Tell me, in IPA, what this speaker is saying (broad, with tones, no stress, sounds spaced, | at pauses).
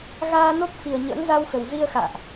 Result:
ɣ aː˧ n o˦˥ k̚ f i˨˩ ə̯ ɲ ə̰ː˧˥ ŋ z a˧ w x ə˨˩ w z i˧ ə̯ x a̰ː˧˨ ʔ